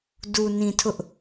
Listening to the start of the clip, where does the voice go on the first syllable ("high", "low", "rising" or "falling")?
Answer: low